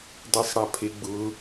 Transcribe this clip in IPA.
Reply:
dˤesˤɽapʰeɡ͡bʊ

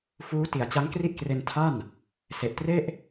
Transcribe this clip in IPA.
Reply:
fuː˦˥ ti˨˩a̯t͡ɕa˦˥ŋkri˥˩ʔkre˧n tʰa˥˩n | se˨˩ʔtre˥˩ʔ

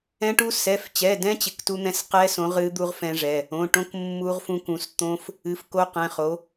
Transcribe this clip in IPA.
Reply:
ɛ̃˦˥ʈu˦˥ sɛ˩˧˩ft͡ɕɛ˩˧˩dɛ̃˦˥ t͡ɕɪ˩˧˩ktu˦˥n̪ɛ̃˦˥s qɛ˦˥sõ˨˦ʁɨ˨˦ d̪u˦˥ʁfɛ̃˦˥ʐɛ˩˧˩ | õ˩˧˩ʈõ˦˥k mːu˦˥ʁfũ˦˥kũ˨˦s t̪õ˦˥f | ɨ˨˦fko˦˥qɛ̃˩˧˩ χo˨˦

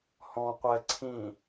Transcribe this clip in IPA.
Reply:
hɔ̃ qʷɛ ǀʰĩ

